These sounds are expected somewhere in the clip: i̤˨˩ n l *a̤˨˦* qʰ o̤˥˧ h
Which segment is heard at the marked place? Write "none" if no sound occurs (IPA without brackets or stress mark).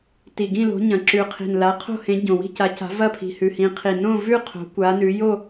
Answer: a˨˦